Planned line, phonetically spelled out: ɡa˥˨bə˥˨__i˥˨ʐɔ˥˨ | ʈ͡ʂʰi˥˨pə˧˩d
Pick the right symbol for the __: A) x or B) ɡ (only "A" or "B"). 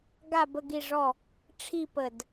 B